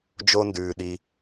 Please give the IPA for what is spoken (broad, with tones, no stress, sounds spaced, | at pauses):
d͡ʒ o˥ n d ʉː˧ ɗ i˧